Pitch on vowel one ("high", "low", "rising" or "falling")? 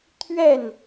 falling